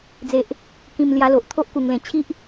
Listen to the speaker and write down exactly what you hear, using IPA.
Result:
d͡z e˨ ʔ | k ĩ˨˩ m l j a˧ l o˨ ʔ t̪ʰ o˦ ʔ k u˨˩ ŋ l ẽ˨˩ t͡ɕʰ i˦ ʔ

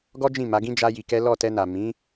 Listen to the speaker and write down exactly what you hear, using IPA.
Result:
ɡ ɔ˦ d͡ʒ ĩ˦˨ m a˨˦ ɡ ĩ˦ d͡ʒ a˦ j i˧ k ɛ˦ l ɔ˦˨ t ɛ˧ n a˨ m ĩ˨˦

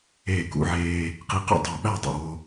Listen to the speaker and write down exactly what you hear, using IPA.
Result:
eː˧˩ k ṵ˧ ʕ eː˧ | q i˧ q ṵ˥˨ dˤ o˧˩ ɓ æ˥˨ dˤ ṵ˧˩ w o˧

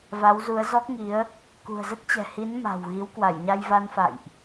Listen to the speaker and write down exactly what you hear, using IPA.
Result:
v a˨˦ w z u˨˦ ə̯ z ɔ˦˥ k̚ ŋ i˨˦ ə̯ | k ṳ˨˩ ə̯ z ə˦˥ t̚ t͡ɕ ɛ̤˨˩ h i˨˦ n m a̤˨˩ w ɣ i˨˦ w k w a˧˩ j ɲ a˧ j v a˧ n f a̰˧˨ j ʔ

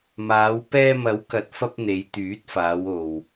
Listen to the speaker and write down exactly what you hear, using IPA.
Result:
m aː˨˧ w p ɛː˧ m ɐ˨˥ w k ɐ˨ t̚ f ɐ˧ p̚ n̪ e˨˧ j t̪ yː˨˥ t̚ f aː˨˧ w o˨ w

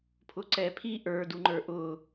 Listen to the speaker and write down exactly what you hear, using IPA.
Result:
pʰ ʊ ǀ ɛ pʰ i ʔ ə˞ d u ŋ͡ǃ ə˞ ʔ ʊ

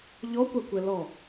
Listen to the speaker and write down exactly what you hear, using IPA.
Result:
ʎ ɔ kʷ a kʷ ɛ l ɔ

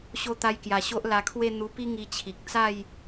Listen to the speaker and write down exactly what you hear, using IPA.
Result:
ɕ o˧ t̪ a˧ j k j a˨˩ ɕ o˦ ʔ l a˧ kʰ w e˥˧ n̪ u˧ p i˦ ŋ i˧ t͡ɕʰ i˨ k̚ t͡s a˥˧ j

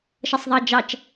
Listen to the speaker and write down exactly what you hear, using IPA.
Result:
ʃ ʌ sˤ ðˤ ɑ d͡ʒ ɑ t͡ʃ

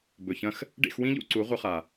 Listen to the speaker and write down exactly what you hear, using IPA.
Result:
b ɵ˨ ç ɐ̃˦ x | ɖ ḛ˦˨ x w ĩ˦ ʎ ṵ˧ ǀ u˨˦ ʁʷ ɨ˧ χ a˨

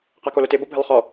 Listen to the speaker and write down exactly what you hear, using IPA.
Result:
q a k o l ʊ t ɪ b o bʱ ɪ lˠ χ ɔ

